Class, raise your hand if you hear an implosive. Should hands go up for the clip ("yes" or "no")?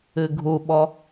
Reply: yes